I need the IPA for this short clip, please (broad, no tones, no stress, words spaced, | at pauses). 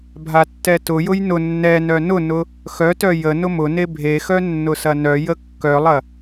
bʱatːɛtʊjʊj nʊ nːɛnœ nʊnʊ | xœtœ jə nʊmʊne bʱexœ nːʊsɐnœjə kːœlˠɐ